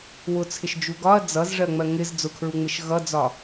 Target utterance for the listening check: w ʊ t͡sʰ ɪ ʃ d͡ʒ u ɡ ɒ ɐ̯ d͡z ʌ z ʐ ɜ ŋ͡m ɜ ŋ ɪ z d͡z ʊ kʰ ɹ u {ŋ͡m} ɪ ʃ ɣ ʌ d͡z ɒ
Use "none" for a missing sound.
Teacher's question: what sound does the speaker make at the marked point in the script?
ŋ͡m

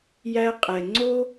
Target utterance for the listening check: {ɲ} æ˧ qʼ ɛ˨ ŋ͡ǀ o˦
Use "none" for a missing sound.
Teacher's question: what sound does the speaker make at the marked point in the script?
j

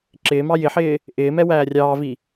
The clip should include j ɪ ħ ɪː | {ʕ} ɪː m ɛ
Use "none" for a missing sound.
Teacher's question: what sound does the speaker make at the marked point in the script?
ʔ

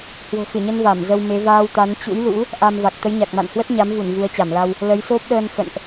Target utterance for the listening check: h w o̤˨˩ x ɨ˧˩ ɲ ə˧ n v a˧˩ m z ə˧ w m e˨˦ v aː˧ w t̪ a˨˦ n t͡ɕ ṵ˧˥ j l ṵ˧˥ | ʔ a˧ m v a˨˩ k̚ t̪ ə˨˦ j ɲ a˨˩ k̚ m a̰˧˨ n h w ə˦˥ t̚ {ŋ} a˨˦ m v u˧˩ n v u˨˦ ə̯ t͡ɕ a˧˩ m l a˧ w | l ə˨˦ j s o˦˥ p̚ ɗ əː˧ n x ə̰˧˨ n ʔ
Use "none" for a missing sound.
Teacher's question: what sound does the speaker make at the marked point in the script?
ɲ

